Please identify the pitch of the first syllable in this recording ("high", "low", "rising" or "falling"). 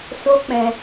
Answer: high